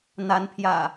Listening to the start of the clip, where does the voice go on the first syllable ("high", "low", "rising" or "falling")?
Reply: rising